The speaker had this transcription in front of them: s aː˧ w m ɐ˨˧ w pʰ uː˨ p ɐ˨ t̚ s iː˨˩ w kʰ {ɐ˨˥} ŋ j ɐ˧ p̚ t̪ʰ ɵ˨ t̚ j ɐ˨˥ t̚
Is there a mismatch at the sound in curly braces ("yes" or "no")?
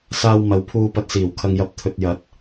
yes